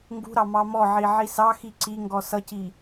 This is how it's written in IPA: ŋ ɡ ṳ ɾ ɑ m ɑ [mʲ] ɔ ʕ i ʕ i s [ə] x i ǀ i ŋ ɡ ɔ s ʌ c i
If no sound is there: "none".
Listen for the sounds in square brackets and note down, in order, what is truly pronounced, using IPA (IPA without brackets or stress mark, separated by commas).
m, ɑ